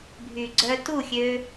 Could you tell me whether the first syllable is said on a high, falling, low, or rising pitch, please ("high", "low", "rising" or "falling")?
low